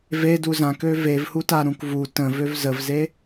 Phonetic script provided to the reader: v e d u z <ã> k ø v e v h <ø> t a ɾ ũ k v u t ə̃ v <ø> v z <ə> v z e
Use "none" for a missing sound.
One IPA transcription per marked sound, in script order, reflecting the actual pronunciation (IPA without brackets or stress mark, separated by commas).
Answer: ã, u, ø, ə